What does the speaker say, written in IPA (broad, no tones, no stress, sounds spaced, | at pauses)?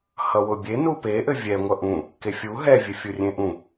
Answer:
h ʌ w ʊ bʲ e n u p e ʔ ɘ vʲ ɛ ŋʷ ʌ ʔ ũ | k e fʲ u ɦ ɛ vʲ ɘ fʲ u rʲ ẽ ʔ ũ